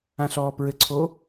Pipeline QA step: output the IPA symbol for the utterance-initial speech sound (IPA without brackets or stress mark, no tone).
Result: ã